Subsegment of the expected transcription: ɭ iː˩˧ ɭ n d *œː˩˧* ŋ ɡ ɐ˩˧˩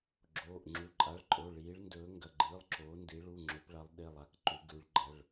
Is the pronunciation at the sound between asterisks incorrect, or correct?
incorrect